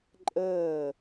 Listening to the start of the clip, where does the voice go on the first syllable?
falling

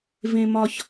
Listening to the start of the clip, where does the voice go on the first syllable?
low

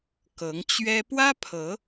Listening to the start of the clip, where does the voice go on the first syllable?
rising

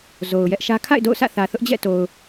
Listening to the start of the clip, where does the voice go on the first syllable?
low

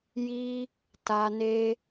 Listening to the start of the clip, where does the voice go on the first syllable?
high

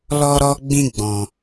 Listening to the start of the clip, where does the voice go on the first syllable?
high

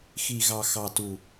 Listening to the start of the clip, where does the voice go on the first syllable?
low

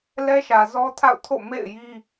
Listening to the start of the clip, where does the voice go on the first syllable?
high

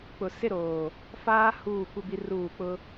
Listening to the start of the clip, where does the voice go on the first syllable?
low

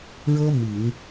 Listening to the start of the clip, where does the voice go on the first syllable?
high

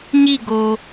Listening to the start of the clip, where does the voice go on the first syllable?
falling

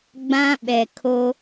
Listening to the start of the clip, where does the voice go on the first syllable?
high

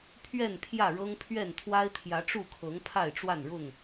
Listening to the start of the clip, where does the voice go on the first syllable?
falling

